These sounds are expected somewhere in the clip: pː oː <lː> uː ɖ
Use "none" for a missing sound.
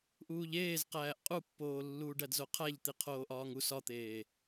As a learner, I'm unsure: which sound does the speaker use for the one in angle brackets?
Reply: lː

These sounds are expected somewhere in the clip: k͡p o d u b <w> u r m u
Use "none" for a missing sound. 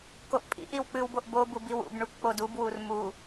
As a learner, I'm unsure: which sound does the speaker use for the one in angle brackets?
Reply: w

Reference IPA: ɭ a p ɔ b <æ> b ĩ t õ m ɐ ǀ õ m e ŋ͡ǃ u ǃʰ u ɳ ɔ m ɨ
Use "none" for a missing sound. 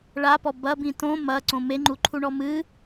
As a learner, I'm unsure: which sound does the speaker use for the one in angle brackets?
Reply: ɐ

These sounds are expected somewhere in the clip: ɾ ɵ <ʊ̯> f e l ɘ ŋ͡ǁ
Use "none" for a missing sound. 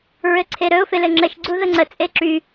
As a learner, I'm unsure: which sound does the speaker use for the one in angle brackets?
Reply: ʊ̯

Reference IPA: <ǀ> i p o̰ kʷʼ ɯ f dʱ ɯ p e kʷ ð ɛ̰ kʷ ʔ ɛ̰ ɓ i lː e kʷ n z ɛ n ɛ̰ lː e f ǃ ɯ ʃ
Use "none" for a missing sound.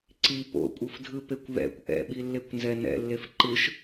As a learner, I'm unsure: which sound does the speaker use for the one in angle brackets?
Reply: ǀ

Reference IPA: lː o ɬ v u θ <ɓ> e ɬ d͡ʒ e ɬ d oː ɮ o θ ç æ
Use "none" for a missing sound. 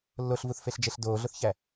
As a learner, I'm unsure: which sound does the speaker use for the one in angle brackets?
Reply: f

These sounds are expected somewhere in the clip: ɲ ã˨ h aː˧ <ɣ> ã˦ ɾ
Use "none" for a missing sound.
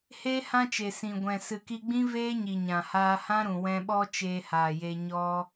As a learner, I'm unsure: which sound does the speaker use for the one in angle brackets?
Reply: h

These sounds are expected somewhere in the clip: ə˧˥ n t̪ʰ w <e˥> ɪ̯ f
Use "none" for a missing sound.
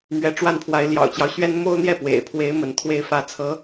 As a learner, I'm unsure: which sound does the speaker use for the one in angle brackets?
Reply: e˥˧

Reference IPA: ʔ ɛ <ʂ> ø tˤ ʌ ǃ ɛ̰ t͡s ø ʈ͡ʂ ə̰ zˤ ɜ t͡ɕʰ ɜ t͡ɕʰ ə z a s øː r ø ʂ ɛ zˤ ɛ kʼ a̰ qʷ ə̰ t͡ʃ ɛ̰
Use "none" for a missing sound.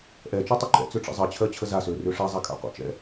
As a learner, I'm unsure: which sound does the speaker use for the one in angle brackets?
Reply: t͡ʃ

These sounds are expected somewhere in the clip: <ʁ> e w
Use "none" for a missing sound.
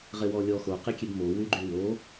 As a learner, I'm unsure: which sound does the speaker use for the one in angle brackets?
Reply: ʁ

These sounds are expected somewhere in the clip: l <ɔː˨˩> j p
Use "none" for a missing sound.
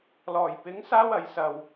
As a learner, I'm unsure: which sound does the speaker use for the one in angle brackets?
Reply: ɔː˨˩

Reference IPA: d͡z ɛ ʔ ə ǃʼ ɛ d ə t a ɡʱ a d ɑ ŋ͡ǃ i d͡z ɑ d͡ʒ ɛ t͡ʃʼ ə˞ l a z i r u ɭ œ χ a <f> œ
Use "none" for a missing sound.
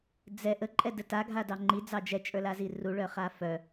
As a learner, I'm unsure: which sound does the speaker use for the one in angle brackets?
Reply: f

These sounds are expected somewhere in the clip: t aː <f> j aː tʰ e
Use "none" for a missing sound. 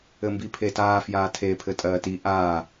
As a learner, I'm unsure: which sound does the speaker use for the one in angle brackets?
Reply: f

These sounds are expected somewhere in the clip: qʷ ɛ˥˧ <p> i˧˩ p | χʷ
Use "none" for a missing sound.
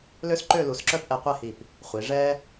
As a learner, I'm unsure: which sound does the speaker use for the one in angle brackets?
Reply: h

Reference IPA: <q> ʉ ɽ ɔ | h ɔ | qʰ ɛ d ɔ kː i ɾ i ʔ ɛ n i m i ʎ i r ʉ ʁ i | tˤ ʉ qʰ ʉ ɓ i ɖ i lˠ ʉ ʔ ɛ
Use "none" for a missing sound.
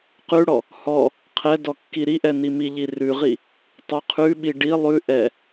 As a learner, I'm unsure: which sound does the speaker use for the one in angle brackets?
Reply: q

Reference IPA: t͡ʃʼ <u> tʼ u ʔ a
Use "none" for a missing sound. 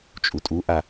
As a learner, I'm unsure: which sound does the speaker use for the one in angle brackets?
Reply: u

